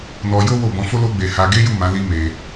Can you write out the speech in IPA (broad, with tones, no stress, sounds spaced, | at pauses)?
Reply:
n ɔ˧ j o˦ w o˦˨ b ɔ̃˨˦ f o˦ l o˦ ɡ͡b e˧ h a˧ ɡ e˦ j u˦˨ m ã˨˦ l i˦ m e˧